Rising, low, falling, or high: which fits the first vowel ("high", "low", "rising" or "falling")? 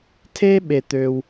high